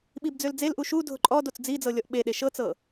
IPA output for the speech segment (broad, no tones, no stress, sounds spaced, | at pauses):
ɓ i b d͡z ø l d͡z e l ʔ u ʃ u dʱ ʊ ǃʼ ɔ d o t͡s d͡z i d͡z ɤ lʲ ɔ ʔ ɓ e ɗ e ʃ ɤ t͡s ɤ